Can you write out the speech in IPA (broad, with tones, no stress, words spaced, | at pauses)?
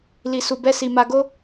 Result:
li˧su˧bɛ˦si˧ ma˧ɡo˦